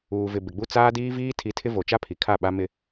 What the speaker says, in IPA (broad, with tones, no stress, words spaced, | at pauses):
uː˨vɪ˨ bɪ˨ɡ͡bu˦ t͡saː˦diː˦viː˦ tʰi˨˦tʰɪ˦ vo˨t͡ʃa˦pʰi˨ kʰa˦˨ɓa˦mɪ˦